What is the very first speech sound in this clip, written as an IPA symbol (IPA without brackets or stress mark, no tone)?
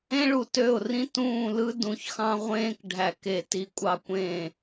ẽ